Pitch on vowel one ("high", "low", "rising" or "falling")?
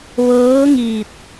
rising